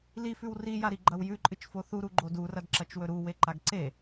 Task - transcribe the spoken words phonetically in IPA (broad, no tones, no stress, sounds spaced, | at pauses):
l i f ʉ w r i j a ɾ i ɡ͡ǃ ɐ w j ʉ ǃʼ ɨ t͡ʃ f o θ u ɾ u ɡ͡ǃ o d u r ɐ d ǁ ɐ t͡ʃ w ɵ ɾ u w e ǃ a ɡ ǀ e